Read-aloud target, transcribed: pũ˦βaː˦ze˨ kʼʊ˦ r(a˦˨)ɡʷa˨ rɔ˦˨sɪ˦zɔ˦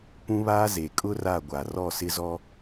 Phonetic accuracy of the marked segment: correct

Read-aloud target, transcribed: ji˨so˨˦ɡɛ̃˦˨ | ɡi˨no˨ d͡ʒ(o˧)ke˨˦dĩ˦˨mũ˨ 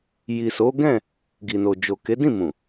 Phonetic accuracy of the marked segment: incorrect: o˨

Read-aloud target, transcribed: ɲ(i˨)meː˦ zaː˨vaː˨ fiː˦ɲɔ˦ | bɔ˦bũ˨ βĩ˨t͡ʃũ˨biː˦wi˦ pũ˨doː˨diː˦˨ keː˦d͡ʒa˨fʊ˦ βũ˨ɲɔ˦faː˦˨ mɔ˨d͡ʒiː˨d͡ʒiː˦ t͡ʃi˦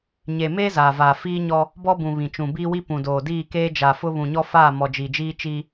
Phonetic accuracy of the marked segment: incorrect: e˨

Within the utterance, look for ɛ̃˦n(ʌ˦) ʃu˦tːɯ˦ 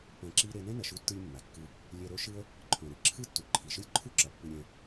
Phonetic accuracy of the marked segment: incorrect: ʌ˨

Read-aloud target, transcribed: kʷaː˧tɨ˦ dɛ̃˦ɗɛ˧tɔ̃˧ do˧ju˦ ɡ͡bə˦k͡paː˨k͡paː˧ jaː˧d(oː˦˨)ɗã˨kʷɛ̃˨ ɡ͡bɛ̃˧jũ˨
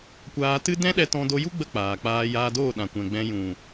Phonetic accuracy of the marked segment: correct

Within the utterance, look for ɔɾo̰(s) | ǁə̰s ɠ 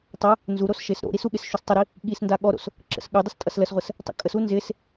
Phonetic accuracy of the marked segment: correct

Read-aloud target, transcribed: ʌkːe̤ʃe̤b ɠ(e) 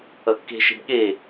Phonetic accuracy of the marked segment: correct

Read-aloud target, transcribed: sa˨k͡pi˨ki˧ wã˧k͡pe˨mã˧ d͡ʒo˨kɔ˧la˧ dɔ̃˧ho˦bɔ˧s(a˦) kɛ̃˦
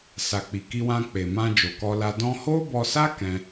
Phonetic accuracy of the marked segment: correct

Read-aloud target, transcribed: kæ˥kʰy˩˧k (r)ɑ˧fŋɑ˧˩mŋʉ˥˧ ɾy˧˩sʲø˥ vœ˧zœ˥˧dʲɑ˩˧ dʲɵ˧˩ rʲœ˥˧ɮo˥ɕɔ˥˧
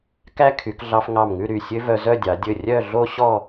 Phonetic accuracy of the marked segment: incorrect: ɮ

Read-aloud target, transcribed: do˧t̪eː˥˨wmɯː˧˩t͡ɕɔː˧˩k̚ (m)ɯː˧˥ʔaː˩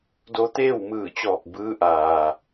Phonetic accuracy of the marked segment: incorrect: b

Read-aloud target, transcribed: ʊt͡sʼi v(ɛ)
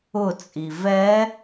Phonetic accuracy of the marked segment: correct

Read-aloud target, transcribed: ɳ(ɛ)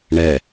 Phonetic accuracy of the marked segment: correct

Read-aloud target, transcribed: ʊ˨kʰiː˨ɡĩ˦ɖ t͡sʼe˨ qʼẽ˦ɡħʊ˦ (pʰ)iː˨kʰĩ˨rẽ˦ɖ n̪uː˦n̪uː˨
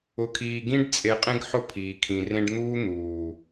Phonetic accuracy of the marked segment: correct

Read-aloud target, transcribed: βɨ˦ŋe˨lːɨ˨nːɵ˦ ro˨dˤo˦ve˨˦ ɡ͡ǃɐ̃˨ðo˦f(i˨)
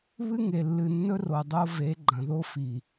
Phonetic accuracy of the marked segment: correct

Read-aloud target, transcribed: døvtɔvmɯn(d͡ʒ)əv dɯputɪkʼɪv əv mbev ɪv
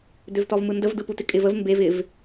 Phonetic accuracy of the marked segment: incorrect: d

